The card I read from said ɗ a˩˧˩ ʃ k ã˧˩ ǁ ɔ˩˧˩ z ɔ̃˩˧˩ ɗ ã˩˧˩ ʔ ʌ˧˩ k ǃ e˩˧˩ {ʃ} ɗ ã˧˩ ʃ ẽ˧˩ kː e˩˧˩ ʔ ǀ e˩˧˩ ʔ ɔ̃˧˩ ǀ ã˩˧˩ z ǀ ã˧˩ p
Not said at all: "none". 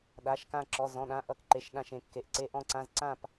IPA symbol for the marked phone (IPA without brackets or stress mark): ʃ